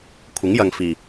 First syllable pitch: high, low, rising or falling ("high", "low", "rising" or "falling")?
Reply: rising